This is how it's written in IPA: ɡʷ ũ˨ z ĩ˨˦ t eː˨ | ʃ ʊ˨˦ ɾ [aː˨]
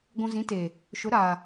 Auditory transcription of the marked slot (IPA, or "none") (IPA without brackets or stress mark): aː˨